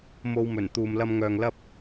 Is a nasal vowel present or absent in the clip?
absent